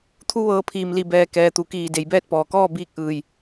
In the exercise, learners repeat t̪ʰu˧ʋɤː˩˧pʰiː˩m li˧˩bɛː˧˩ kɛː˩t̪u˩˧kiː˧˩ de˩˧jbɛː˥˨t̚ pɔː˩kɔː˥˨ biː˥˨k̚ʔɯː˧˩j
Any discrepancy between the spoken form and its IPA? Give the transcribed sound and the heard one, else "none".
none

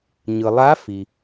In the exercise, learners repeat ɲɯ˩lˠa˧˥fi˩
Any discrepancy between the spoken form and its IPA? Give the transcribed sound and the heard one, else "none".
none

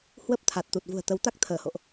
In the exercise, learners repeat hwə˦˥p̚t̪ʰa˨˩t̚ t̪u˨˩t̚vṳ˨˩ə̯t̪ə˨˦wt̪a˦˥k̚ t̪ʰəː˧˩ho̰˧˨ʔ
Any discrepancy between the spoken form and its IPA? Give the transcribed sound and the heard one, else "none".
none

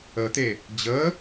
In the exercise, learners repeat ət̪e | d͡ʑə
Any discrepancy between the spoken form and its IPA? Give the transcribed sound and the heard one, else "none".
none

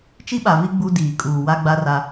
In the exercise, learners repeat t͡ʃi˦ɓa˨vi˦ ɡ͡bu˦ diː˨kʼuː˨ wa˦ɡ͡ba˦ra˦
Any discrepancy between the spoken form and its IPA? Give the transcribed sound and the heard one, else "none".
none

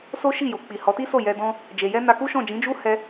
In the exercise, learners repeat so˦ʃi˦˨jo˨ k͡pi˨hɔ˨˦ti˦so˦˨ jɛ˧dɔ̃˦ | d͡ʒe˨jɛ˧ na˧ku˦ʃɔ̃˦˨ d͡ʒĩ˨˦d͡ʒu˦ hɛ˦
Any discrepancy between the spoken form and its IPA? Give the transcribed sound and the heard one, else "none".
none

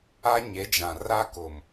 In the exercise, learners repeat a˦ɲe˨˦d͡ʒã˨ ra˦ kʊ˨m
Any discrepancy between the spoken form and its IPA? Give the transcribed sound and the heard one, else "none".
none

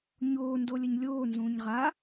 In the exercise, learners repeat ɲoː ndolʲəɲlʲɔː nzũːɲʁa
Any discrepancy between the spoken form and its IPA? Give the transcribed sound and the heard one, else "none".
ɔː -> oː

